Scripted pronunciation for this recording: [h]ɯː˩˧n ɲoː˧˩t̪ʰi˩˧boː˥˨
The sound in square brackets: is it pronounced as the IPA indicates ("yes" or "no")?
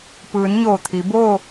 no